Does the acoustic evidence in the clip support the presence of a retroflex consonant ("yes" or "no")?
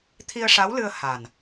yes